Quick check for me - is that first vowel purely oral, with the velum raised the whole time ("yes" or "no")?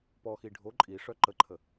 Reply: yes